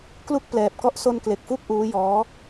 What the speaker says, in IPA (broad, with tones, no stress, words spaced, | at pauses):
klu˥˩k̚plɛː˨˩p̚kɔ˥˩ʔ so˧nkle˨˩k̚fu˦˥k̚ ʔuː˦˥jɔː˦˥